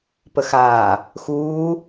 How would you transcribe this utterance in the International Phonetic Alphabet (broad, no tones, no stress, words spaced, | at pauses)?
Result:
pəxaː | xuː